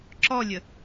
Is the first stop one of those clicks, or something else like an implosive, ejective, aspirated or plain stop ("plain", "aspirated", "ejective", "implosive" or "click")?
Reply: click